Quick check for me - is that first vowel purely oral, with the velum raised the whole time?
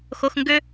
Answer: yes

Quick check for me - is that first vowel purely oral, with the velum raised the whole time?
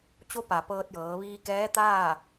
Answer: yes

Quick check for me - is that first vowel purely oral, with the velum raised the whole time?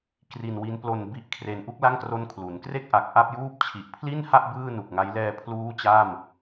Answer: yes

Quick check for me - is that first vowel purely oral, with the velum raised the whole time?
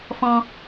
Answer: no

